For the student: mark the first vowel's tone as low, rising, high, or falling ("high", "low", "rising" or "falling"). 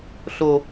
high